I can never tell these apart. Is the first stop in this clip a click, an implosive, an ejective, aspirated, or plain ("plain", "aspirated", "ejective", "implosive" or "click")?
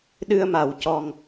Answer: implosive